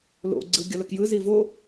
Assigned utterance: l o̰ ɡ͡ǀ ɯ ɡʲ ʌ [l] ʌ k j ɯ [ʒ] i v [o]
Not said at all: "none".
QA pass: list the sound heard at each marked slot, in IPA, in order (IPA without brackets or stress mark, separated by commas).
l, z, o